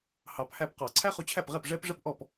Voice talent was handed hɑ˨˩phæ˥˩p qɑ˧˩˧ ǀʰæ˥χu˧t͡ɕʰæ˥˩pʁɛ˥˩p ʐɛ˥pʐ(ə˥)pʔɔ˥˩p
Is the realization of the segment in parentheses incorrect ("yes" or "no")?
no